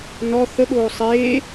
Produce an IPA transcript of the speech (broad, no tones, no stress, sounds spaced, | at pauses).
n ɔ θ ə ɠ oː sˤ eː